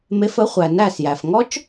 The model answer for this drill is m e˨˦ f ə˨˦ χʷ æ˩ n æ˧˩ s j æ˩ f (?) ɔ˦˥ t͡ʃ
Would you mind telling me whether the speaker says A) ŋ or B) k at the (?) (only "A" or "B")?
A